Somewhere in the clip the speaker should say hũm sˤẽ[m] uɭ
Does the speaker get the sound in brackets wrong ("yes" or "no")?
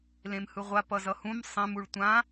no